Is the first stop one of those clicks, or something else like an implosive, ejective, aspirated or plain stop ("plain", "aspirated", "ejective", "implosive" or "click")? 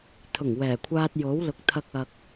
aspirated